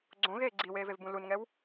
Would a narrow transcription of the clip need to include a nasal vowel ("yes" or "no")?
yes